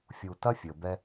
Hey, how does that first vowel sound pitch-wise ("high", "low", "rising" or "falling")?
low